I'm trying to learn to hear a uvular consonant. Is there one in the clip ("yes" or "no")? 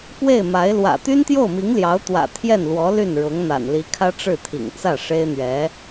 no